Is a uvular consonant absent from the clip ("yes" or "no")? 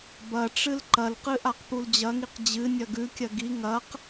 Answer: no